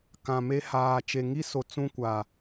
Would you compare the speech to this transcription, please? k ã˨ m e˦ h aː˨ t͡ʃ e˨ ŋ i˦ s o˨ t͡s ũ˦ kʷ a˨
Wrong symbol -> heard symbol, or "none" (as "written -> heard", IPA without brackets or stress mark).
none